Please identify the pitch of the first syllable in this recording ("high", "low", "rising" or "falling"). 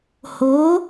rising